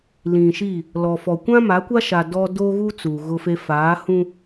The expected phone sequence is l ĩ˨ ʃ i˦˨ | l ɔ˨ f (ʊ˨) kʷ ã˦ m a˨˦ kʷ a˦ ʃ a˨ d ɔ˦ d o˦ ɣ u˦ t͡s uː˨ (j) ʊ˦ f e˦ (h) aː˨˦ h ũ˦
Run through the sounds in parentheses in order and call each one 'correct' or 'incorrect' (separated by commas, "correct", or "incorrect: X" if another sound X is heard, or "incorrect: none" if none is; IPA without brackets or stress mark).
incorrect: ɔ˨, incorrect: ɣ, incorrect: f